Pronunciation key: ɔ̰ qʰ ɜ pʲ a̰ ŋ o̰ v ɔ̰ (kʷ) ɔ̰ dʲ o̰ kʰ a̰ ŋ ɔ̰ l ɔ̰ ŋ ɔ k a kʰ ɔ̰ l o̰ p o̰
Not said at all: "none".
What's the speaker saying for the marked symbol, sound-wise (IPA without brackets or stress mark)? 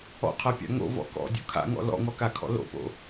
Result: k